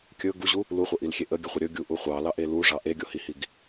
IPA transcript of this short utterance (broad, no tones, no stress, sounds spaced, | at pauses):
kʲ ɵ ɡ u ʑ u | l u χʷ ə ʔ i l xʲ e ʔ ə ɡʲ ə χʷ ə ɾʲ ɵ ɡʲ u ʔ u χʷ ɑ l ɑ ʔ e l u ʐ ɑ ʔ e ɡʲ o h i h i ɡ